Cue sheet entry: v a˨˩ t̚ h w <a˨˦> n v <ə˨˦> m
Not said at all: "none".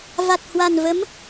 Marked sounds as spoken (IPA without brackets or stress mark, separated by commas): a˨˩, ə˨˦